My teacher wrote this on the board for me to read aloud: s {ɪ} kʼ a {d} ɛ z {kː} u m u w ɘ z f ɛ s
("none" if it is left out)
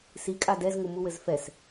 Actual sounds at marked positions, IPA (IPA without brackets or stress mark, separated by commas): i, d, ŋ